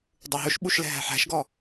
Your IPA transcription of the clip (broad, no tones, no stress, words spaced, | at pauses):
dˤuɦɵʃɓuʃlɛ̤ ɦæ̤ħæ̤ʃɡɔ